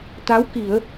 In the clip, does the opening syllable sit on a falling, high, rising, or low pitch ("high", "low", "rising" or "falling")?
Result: rising